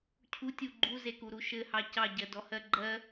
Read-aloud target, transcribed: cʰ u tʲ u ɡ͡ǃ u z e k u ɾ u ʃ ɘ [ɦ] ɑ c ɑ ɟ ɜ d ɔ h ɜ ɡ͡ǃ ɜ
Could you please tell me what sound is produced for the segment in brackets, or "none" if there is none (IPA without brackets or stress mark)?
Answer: h